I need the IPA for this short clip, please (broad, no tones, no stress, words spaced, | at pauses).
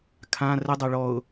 kʰã rədˤa ɭɔʊ̯